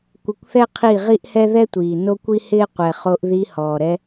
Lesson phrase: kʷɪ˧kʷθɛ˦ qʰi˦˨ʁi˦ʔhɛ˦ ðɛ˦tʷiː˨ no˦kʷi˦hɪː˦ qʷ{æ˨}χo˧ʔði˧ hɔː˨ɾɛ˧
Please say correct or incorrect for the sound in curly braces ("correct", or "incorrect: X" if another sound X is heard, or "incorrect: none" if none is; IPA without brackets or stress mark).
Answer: incorrect: ɛ˨